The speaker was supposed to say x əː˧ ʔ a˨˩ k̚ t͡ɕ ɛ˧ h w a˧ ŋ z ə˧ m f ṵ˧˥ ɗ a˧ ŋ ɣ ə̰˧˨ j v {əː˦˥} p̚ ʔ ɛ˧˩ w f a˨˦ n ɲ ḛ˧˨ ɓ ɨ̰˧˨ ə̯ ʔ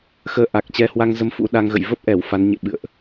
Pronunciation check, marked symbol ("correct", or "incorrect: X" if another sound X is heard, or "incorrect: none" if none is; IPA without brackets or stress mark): incorrect: ə˦˥